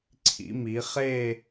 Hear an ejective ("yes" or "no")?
no